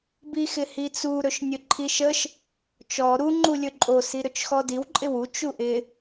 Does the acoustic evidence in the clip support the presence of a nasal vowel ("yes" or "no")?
no